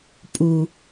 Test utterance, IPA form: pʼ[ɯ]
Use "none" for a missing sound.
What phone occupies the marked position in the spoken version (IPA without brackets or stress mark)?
u